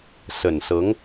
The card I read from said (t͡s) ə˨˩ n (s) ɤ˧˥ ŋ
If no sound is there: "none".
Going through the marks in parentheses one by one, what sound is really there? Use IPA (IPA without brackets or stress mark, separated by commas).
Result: s, s